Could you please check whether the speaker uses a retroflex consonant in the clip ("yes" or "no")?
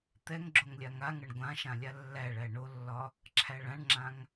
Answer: yes